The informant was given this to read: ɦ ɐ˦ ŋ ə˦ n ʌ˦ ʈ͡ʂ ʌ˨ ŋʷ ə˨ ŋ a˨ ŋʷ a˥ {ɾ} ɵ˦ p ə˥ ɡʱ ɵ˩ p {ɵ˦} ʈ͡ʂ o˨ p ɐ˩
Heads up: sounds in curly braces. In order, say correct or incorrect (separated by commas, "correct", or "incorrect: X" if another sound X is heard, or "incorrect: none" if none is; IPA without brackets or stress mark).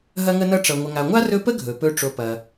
incorrect: r, correct